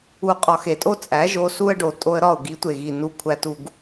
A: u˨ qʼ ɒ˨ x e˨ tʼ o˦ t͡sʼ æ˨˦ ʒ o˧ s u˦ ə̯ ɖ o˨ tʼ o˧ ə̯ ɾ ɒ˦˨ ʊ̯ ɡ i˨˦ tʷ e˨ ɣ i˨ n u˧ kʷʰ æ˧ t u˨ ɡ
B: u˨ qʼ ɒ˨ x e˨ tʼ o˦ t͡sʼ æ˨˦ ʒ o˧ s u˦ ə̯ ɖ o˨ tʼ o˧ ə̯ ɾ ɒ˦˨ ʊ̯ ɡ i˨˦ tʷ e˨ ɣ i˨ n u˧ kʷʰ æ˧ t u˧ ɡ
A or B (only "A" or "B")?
B